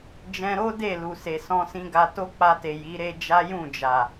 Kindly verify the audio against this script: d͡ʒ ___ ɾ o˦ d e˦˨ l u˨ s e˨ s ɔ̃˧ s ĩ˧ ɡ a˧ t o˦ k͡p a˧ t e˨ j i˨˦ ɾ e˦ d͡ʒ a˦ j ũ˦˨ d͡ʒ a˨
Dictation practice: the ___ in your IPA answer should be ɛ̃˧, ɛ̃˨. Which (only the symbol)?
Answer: ɛ̃˧